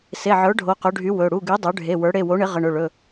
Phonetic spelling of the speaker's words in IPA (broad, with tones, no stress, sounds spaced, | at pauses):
s e˩˧˩ ʕ ə˞˩˥ ɖʱ o˩˧˩ q ɵ˩˥ ɖʱ y˩˥ w ɵ˩˧˩ ɽ u˩˧˩ ɡ y˩˥ dˤ ə˞˩˥ ɖʱ e˩˧˩ w ə˞˩˥ ɽ e˩˧˩ w o˩˥ ɳ ɪ˩˥ ʁ ə˩˧˩ ɳ ɵ˩˧˩ ɭ ɵ˩˧˩